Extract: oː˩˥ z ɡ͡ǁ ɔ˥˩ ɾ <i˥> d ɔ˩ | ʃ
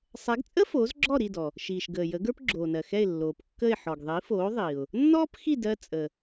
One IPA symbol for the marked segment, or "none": i˥˩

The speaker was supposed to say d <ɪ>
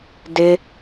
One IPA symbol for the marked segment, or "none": ɪ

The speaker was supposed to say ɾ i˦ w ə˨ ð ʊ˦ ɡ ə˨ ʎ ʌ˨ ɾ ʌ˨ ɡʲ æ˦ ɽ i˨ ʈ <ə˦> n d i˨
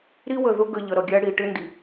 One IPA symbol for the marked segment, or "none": ɪ˦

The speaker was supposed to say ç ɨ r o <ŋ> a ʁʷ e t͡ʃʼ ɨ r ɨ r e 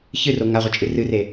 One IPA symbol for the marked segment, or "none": ŋ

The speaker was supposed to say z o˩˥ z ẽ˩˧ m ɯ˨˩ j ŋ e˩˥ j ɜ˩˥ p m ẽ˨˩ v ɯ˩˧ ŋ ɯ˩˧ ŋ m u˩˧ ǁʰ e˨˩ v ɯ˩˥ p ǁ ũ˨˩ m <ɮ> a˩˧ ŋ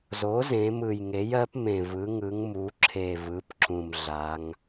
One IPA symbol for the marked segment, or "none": ɮ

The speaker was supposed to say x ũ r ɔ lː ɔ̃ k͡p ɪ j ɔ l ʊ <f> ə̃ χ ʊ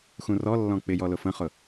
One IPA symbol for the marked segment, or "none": f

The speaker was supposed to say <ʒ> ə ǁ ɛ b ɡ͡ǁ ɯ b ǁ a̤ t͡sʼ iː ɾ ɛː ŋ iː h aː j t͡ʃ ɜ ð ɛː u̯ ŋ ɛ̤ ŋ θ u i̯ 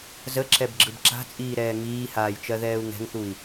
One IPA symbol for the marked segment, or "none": z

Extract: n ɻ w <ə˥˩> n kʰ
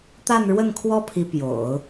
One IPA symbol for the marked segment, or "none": ə˥˩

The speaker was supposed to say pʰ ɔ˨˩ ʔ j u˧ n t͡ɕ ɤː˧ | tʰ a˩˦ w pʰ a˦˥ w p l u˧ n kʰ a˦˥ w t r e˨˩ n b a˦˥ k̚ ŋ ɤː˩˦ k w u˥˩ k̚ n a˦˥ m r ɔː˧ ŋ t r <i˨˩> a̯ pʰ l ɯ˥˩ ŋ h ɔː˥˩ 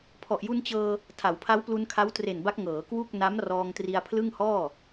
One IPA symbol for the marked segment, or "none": i˧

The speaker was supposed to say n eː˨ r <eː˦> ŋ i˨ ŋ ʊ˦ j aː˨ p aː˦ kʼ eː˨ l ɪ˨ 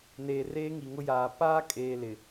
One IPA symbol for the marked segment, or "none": eː˦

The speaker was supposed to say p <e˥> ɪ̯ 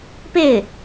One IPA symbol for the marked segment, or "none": e˥˩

